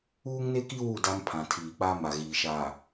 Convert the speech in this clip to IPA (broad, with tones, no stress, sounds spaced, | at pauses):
uː˦ ŋ n e˦ k i˦ w u˦˨ d a˦ m pʰ ã˨ tʰ iː˨ k͡p a˦ m a˨ ɣ iː˨ ʃ aː˨